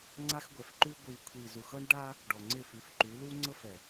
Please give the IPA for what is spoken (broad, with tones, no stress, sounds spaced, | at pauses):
ŋ͡ǀ a˦ x ɡʷ ɛ˨ f ǃ ʉ˦ ɡʷ i˨ kʷʰ i˨ z u˨ x ɤ˦ ɳ ɖ a˦ | ɖ ɔ˨ ŋ͡ǀ ɪ˦˨ f ʉ˨˦ f ǃ ʉ˨˦ l u˦ ŋ͡ǀ ɤ˦ f ɛ˨